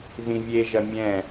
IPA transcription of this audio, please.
z ĩ vʲ e ʒ ɐ mʲ ɛ̃

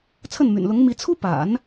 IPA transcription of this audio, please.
t͡sʰ ə˥˩ n m y̰˨˩ n l ʊ˧˥ ŋ m i˧˥ t͡sʰ u˥ p a̰˨˩˦ n

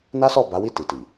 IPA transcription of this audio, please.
n a˦ s ɔ˦˨ b a˨˦ w i˦˨ t i˨ t i˨

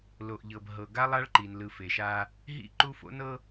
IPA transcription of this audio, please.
l o˨ ʔ ʎ ɤ˨ b ɦ ɤ˨ ɡ a˦ lˠ a˦ ɭ ǃ i˨ n l ɯ˨ f e˨ ʃ a˦ | ɦ ḭ˦˨ ǃ u˦ f o̰˦ n ɤ˦

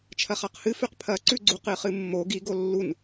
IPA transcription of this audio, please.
t͡ʃʰ ɐ χ a q h ɨ f ʉ q pʰ ɐ ǀ ʉ ɡ͡ǀ u q ɨ χ ɨ mː o ɡ i ɡ o lː u n

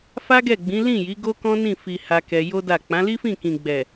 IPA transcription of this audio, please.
f a˦ ɡ ɛ˦˨ ɡ͡b ĩ˨˦ l ĩ˦˨ j i˨˦ ɡ o˦ k ɔ̃˦ n ĩ˦˨ f i˨ h a˧ k ɛ˧ j o˦ d a˦˨ k͡p ã˨˦ l i˦ f ĩ˦˨ k ĩ˨ ɡ͡b ɛ˨

